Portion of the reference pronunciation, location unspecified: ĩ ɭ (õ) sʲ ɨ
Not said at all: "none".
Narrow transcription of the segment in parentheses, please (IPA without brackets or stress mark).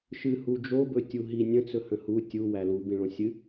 õ